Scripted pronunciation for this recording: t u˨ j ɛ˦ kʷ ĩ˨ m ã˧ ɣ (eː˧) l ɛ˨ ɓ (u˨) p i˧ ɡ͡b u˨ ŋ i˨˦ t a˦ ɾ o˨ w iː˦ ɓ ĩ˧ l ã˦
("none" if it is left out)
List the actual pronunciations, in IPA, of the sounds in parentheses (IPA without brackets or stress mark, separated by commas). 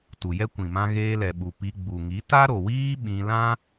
eː˧, u˨